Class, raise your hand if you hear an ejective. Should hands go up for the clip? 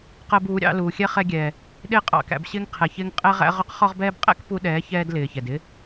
yes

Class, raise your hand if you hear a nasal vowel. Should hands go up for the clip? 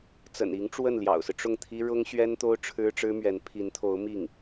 no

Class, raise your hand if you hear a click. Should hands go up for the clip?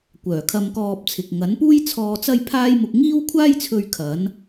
no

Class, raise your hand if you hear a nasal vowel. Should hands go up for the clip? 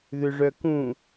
yes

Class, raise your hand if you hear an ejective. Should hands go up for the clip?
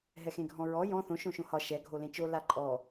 yes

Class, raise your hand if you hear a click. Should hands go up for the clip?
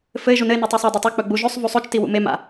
no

